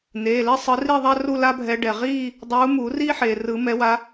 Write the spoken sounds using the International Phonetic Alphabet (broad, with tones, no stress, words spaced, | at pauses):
n̪eː˩˧˩ le˥sˤɯ˨˦ri˥˧ðˤa˥ ru˥˧la˥bʱɛ˨˦ ɖɛ˩ ʁiː˥˧ | dˤuː˨˦muː˨˩˦riː˥ħeː˩ rɯ˨˩˦mɛ˨˦wa˨˦